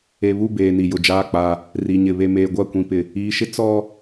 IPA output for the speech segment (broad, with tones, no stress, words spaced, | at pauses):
e˨βu˦˨ beː˨ ni˨jʊ˨d͡ʒaː˦˨k͡pa˦ | ri˨ɲɪ˨ βe˨meː˨ ɡʷa˦˨kʷĩ˨pɪ˨ | iː˨ʃɪ˦ t͡sɔ˦